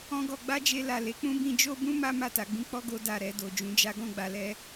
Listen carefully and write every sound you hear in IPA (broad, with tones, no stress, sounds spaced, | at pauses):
ɔ̃˦ ɡ ɔ˧ ɡ͡b a˦ d͡ʒ e˧ l a˨ l e˨˦ k͡p ũ˦ b ĩ˧ d͡ʒ o˦ b ũ˦ m a˦ m a˦˨ t a˧ ɡ͡b ĩ˦ k͡p ɔ˦ ɡ o˧ d a˨ ɾ ɛ˨ d o˨ d͡ʒ ũ˧ d͡ʒ a˦ ɡ ɔ̃˦˨ ɡ͡b a˨ l ɛ˧